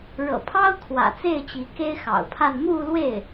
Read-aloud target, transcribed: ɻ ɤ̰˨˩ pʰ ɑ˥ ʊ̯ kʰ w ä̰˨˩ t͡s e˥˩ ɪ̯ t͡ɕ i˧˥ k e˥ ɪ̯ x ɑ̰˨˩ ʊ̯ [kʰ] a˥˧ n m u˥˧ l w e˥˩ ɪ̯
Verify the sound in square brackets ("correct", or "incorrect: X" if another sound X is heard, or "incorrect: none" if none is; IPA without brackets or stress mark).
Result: incorrect: pʰ